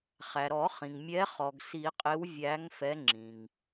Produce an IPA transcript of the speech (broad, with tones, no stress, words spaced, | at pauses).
χæ˩ɾɔ˨˩˦χĩ˩ŋmʲɛ˨˦ χɔ˩ɡsi˨˩˦qʼɪ˨˦w vʲæ˨˦ŋ fɛ˨˦ŋ͡ǁĩ˩ŋ